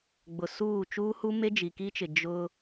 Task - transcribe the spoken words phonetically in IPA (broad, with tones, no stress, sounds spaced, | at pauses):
ɡ͡b ʊ˨ s uː˦˨ t͡ʃ uː˦ h u˦ m e˦ d͡ʒ i˨ k i˦ t͡ʃ ɪ˨ d͡ʒ ʊ˦